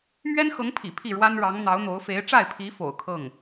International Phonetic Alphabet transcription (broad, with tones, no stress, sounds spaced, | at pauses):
m ɥ ɛ˥ n x ɤ˧˥ ŋ pʰ ḭ˨˩ pʰ i˥˩ ɻ w a˥ n ɻ ɑ˧˥ ŋ n̪ ɑ˧˥ ʊ̯ n̪ o˧˥ ʊ̯ f e˧˥ ɪ̯ ʈ͡ʂ a˥˩ ɪ̯ pʰ i˧˥ f o̰˨˩ ʊ̯ kʰ ɤ˥˩ ŋ